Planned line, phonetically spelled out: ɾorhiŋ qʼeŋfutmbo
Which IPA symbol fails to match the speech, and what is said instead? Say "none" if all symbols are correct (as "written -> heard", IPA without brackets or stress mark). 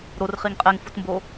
h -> χ